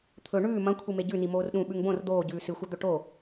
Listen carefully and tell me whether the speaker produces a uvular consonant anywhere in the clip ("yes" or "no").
no